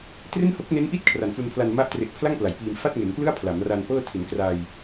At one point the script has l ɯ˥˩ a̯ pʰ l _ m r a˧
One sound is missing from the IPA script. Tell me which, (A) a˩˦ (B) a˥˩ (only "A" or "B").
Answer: A